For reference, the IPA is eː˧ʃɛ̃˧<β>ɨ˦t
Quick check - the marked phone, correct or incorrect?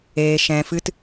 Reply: incorrect